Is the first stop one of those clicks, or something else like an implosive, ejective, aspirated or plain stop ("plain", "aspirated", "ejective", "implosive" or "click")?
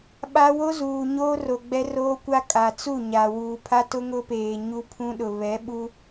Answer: implosive